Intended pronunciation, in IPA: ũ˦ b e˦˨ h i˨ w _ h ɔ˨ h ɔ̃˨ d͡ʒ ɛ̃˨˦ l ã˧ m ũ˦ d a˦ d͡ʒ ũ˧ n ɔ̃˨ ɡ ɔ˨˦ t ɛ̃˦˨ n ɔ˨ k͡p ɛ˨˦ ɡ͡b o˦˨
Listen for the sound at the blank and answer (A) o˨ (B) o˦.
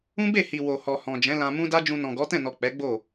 A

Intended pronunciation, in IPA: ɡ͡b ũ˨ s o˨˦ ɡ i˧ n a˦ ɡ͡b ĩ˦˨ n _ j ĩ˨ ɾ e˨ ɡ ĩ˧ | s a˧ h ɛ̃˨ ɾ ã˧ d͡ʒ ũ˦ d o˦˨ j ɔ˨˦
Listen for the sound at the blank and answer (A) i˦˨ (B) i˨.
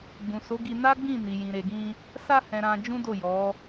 B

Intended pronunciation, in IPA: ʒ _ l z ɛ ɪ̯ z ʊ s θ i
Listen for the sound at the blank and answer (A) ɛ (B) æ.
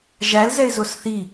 B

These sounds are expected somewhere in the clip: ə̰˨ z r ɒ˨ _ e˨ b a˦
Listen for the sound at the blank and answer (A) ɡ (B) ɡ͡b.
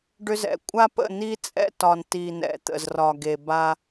A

